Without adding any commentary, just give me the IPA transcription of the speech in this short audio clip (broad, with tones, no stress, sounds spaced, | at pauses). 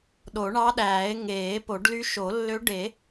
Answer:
ɗ o˨˩˦ ɳ ɑ˧˥ ɗ æː˨˩˦ e̯ ŋ eː˨˩˦ p o˨˩˦ ɖ l y˧˥ ʃ o˨˩˦ lː ø˧˥ ɖ e˨˩˦